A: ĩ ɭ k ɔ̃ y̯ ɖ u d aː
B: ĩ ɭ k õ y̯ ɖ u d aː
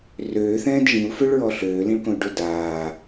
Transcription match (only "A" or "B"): B